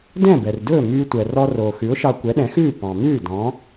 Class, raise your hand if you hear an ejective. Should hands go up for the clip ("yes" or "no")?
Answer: no